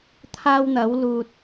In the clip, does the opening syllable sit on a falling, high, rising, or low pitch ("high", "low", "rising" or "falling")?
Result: high